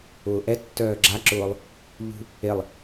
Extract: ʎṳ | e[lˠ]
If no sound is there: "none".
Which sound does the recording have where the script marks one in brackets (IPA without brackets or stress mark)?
lˠ